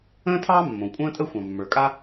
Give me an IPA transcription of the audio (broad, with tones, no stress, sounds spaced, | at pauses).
ə̃ː˥ tʰ ɑː˥ mː õ˩ kʷʼ ə̃ː˥ tʼ ə˥ xʷ ɑ̃˩ mː ə˞˩ kʼ a˥